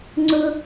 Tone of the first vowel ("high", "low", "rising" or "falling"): high